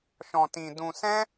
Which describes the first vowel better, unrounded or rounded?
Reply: rounded